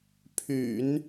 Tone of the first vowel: low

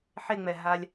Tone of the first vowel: high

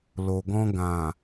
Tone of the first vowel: low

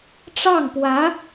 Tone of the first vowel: falling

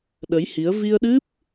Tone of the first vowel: rising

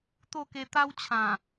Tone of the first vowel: falling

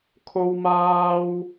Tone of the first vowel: high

